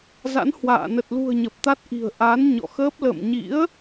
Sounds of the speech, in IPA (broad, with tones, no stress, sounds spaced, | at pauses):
z a̰˧˥ n h w a̰ː˧˨ n ə˨˩ t̚ l ṳ˨˩ ə̯ ɲ ə˨˩ p̚ t̪ a˦˥ t̚ ʔ i̤˨˩ ə̯ ʔ a˨˦ n ɲ ɔ̰˧˨ x əː˦˥ p̚ l ə̰˧˨ m ɲ ḭ˧˥ ə̯